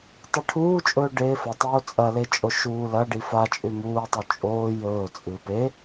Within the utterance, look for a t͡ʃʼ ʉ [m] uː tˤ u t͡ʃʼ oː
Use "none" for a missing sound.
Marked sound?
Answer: m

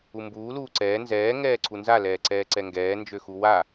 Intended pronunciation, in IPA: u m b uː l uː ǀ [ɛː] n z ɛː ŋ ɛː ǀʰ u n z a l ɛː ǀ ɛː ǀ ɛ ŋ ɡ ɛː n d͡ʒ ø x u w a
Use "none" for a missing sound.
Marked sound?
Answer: ɛː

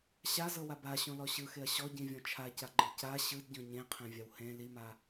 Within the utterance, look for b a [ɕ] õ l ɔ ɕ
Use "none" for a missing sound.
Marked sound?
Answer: ɕ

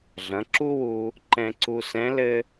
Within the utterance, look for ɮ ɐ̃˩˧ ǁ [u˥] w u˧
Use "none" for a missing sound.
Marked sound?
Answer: u˥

